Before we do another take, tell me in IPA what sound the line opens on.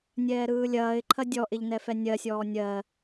nʲ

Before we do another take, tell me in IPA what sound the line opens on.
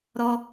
ɾ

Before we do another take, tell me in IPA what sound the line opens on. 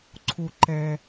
ǀʰ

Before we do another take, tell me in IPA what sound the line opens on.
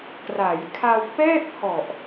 k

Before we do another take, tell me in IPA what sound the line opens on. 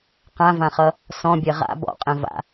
q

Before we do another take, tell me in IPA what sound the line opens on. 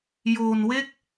j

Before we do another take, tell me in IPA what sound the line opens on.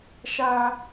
ʃ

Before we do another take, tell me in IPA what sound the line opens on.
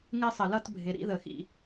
ŋ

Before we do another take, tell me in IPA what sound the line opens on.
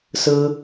s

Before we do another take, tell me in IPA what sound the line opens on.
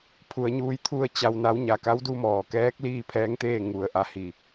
pʰ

